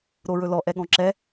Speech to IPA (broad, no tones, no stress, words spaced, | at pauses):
ɾoɹɵlɔ ʔɛɠɔ̃ǁɛ